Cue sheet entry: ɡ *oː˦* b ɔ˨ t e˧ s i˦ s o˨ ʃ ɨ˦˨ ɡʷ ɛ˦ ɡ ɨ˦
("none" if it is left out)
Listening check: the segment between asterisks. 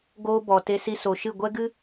oː˦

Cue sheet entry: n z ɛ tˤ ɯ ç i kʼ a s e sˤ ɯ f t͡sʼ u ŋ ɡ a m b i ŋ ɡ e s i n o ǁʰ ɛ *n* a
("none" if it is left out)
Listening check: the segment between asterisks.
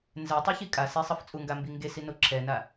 n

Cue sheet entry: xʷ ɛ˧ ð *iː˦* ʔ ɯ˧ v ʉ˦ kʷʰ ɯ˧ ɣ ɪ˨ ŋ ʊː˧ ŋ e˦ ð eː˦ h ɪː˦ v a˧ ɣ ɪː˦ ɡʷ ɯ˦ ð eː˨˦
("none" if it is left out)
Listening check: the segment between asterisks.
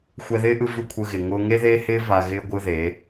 ɪː˦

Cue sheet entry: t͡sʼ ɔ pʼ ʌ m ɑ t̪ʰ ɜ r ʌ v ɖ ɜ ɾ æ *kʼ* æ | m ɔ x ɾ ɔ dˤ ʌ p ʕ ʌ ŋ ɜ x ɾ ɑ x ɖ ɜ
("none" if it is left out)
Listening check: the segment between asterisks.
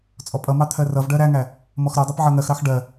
ŋ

